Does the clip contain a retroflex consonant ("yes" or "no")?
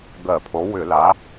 no